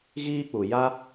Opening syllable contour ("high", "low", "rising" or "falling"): high